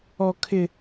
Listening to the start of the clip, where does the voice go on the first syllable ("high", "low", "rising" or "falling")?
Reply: high